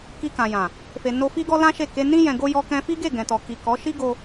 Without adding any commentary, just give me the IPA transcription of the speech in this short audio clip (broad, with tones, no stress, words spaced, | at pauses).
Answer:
ki˧kã˨jã˨ | fe˨no˧ fi˦ɡɔ˦ lã˦ʃe˦˨ ke˧nĩ˦ jɛ̃˧ɡo˦ jɔ˧kɛ̃˧fi˦ɡe˦˨ ɡɛ̃˨tɔ˨ki˨ kɔ˨˦ ʃi˦ɡo˧